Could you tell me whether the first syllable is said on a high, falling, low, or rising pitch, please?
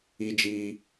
high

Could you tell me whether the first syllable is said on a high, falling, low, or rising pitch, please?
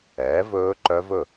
rising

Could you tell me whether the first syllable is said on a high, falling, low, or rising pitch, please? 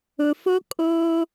low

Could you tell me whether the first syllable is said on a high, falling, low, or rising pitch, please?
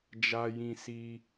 high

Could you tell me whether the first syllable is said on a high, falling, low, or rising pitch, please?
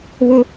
high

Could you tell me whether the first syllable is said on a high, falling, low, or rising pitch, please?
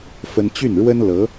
high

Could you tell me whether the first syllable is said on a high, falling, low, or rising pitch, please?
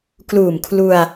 low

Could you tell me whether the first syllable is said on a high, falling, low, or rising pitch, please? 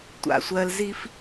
low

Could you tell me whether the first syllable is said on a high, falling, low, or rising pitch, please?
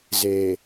low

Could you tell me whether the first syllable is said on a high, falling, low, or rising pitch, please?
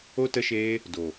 high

